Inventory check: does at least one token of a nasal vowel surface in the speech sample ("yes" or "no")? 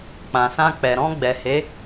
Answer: yes